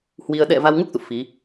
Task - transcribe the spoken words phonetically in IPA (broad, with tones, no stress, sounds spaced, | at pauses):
h w i˧ ə̯ ɗ ɛ̰˧˨ v a˧ w ŋ u˦˥ k̚ z ṵ˧˨ f i˨˦